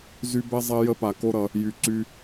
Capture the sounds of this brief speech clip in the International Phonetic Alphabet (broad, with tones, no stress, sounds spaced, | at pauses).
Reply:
z y˦ b ɛ˦ zˤ ɛ˧ j ə˧ p a˨ k o˦ ɾ ʌ˧ | j y˨ ǀ y˧